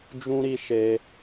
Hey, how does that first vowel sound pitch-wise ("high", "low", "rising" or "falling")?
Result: high